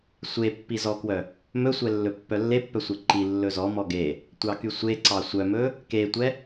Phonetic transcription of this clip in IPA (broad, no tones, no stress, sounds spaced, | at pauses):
sʷ e pː i z ɔ k w œ | m ɵ sʷ ɛ lː ɵ pː œ lː e pː œ sʷ e ǃ i lː ɵ z ɔ m ɔ ɡ e | tʷ ɑ k y sʷ e ǀ ɑ sʷ œ m ɵ | k e tʷ ɛ